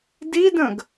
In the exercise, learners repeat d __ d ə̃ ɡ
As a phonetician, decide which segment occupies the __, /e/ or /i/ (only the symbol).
i